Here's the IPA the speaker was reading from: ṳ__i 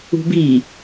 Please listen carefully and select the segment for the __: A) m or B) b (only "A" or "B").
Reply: B